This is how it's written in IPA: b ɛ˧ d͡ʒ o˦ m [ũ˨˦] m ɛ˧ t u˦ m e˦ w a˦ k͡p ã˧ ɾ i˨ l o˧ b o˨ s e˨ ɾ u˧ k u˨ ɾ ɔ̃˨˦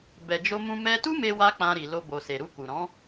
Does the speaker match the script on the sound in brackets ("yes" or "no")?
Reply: no